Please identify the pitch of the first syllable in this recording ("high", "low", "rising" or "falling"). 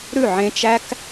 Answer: falling